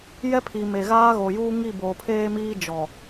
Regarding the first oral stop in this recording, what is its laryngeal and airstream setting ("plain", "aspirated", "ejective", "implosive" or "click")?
aspirated